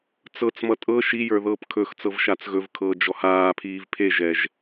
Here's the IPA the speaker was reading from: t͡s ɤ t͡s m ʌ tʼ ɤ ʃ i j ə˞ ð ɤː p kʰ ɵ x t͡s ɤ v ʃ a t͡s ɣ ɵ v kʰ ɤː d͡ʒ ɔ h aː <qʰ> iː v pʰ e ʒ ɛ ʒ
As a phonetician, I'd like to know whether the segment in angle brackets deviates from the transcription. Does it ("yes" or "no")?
yes